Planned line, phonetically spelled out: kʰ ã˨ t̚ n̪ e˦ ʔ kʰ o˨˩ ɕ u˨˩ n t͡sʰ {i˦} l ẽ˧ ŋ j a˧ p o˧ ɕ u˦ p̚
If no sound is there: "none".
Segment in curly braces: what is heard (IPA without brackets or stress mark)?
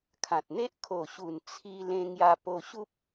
i˧